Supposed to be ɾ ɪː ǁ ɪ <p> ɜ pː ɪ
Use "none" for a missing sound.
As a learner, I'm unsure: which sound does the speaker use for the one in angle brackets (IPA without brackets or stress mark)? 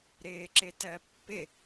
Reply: t